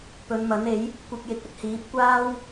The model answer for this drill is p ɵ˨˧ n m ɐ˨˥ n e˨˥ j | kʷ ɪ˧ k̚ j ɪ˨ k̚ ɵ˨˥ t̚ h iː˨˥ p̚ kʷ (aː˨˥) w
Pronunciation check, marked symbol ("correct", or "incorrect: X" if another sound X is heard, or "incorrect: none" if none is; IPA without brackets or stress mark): incorrect: aː˥